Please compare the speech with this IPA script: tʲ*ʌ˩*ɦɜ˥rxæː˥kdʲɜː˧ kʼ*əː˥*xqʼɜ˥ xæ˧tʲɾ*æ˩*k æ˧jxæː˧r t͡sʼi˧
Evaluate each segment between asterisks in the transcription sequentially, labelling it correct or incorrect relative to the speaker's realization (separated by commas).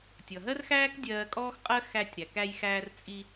correct, incorrect, correct